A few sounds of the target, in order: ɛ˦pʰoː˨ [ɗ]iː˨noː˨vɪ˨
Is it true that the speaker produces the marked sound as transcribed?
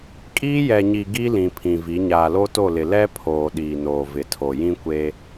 yes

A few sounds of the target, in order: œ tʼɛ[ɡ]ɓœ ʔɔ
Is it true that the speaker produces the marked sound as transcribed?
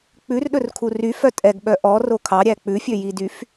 yes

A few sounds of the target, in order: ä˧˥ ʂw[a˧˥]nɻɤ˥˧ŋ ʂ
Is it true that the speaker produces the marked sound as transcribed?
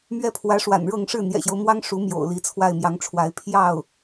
no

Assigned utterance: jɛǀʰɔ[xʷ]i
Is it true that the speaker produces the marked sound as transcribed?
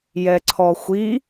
yes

